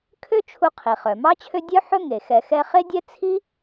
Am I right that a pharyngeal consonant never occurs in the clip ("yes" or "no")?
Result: no